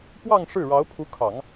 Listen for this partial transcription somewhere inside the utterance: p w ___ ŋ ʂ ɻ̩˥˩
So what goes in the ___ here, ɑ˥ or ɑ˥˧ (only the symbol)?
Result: ɑ˥˧